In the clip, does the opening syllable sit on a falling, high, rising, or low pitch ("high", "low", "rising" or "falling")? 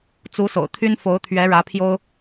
rising